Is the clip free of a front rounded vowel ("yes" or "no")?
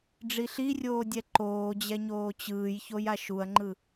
yes